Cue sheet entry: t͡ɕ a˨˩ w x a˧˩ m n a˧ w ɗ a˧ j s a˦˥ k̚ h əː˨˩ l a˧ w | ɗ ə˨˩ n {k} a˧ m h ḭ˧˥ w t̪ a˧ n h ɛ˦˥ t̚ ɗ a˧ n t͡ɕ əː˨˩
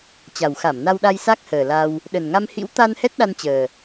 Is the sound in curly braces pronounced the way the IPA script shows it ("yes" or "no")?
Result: no